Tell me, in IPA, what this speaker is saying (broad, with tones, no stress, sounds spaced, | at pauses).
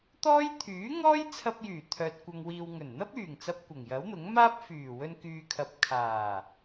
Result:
t̪ ɔː˥ j t̪ʰ yː˨˥ ŋ ɔː˥ j t͡sʰ ɐ˧ p̚ j yː˨˩ t̪ʰ œː˨ t̚ kʷ ɐ˧ ŋ w iː˧ w ŋ ɵ˨˩ n n̪ ɐ˥ p̚ yː˨˩ ŋ t͡s ɐ˨ p̚ kʷ ɐ˨˩ ŋ j ɐ˨˥ w n̪ ʊ˨˥ ŋ m aː˥ p̚ f yː˨˩ w ɵ˧ n k yː˨ kʰ ɐ˨ p̚ kʰ aː˨˩